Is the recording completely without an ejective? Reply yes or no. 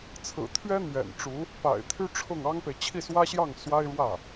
yes